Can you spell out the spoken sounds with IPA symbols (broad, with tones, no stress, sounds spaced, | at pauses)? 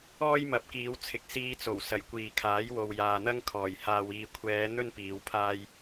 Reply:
ɔː˥ j m ɐ˨˥ p̚ k iː˨˧ w t͡sʰ ɪ˨ k̚ s iː˧ t͡s o˨˩ w s ɐ˨˩ j kʷ iː˨ kʰ aː˨˥ j w o˨ w j aː˨ n̪ ɐ˥ ŋ kʰ ɔː˨˩ j h aː˨ w iː˨ kʷʰ ɛː˨˧ n̪ ɵ˥ n p iː˨˧ w pʰ aː˥ j